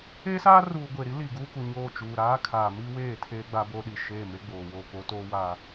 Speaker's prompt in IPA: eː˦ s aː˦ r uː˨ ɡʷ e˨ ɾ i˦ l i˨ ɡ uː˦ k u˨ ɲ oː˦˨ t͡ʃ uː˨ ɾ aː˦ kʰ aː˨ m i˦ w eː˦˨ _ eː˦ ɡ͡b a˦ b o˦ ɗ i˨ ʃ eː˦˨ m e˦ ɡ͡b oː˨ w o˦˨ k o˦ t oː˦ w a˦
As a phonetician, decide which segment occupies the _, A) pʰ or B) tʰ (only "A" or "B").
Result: B